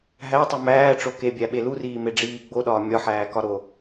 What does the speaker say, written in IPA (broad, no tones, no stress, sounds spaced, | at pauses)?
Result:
ɦ æ tˤ u m æː ʈ͡ʂ o k e bʲ æ ɓ e l u r iː m e ɖ͡ʐ iː ɡ͡b o ɗ ɒː mʲ ɒ ħ æː k ɒ ɾ o